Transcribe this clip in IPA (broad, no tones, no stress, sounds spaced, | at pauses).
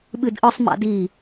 ɓ ɨ d ʔ ɯ sˤ m a̰ d i